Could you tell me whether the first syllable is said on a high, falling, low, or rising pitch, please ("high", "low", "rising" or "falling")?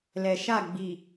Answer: low